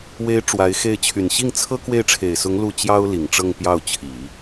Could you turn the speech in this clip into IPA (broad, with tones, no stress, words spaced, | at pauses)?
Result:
we˧˥ɪ̯ ʈ͡ʂwa˧˥ɪ̯xe˥˩ɪ̯ t͡ɕʰy˨˩nɕi˥˩ŋt͡sʰɤ˥ kwe˥˩ɪ̯ʈ͡ʂʰe˨˩ɪ̯sʊ˧˥ŋ lu˥˩ t͡ɕjɑ˥ʊ̯li˨˩ŋ ʈ͡ʂɤ˥˧ŋpjɑ˥˩ʊ̯t͡ɕʰi˨˩˦